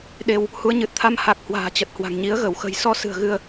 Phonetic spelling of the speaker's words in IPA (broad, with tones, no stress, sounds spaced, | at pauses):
ɗ e˧ w | h u˨˦ ə̯ ɲ ɨ˨˩ t̚ t̪ʰ a˧ m h a˨˩ k̚ h w a̤ː˨˩ t͡ɕ ə˨˩ t̚ h w a̤˨˩ ŋ ɲ i˨˦ ə̯ ɣ ə˧˩ w x ə̤˨˩ j s ɔ˧ s ɨ̤˨˩ ə̯ ɣ ɨ˧ ə̯